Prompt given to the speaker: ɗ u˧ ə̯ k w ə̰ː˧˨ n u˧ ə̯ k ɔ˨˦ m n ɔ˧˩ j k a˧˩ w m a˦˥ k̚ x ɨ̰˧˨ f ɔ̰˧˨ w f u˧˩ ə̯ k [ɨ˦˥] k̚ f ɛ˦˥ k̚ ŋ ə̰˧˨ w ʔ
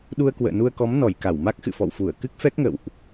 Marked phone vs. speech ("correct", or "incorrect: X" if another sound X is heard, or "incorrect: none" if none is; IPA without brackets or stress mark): correct